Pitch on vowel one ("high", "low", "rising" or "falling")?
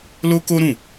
high